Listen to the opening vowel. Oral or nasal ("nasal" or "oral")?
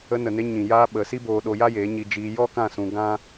oral